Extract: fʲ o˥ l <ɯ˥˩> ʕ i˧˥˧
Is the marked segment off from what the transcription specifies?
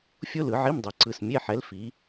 yes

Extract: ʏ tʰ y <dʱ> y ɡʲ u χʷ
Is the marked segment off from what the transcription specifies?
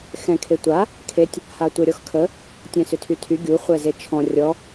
yes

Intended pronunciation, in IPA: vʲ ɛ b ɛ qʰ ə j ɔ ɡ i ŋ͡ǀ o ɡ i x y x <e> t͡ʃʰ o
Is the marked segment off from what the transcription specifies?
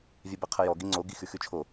yes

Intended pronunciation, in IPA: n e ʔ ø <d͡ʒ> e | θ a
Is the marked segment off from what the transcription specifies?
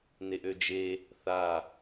no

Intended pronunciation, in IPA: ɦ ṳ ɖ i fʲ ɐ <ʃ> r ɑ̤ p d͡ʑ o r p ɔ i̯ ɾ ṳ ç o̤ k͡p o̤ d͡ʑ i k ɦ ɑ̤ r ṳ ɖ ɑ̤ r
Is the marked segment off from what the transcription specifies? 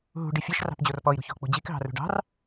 no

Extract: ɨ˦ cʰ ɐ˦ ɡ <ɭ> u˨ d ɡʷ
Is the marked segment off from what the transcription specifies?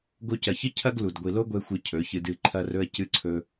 yes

